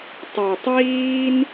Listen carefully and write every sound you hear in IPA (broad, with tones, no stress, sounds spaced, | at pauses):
tˤ ə˞˩ tˤ w iː˧ n